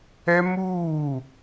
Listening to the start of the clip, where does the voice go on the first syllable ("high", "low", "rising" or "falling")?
high